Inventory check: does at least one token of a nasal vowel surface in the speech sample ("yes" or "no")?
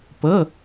no